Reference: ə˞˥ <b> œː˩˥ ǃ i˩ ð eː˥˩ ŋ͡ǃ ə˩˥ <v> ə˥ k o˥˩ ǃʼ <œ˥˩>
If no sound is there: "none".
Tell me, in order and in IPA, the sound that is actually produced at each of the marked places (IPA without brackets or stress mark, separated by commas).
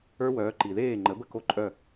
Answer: w, b, œ˥˩